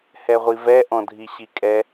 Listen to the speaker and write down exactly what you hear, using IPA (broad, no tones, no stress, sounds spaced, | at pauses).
h ɛ ʁʷ i v ɛ ʔ ɔ̃ dʱ i ɕ i kʼ ɛ